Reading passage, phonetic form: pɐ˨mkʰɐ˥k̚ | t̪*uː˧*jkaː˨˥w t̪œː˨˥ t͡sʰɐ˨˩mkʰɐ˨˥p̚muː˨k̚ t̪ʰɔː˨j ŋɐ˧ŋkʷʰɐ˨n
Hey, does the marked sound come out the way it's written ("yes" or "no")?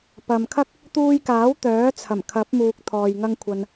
yes